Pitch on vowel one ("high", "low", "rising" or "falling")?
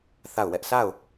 falling